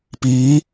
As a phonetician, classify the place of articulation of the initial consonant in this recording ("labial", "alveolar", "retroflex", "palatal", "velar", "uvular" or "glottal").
labial